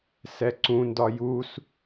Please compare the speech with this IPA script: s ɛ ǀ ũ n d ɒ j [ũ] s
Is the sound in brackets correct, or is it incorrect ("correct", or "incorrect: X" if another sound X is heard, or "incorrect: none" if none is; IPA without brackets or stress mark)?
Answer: incorrect: u